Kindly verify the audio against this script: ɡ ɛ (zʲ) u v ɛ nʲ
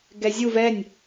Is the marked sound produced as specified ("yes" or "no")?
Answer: yes